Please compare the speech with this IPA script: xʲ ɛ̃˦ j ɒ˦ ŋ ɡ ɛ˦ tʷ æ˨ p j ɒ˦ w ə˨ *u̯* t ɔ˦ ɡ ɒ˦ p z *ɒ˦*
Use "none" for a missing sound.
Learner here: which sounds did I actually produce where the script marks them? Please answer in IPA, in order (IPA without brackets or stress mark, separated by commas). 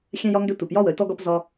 y̯, ɒ˦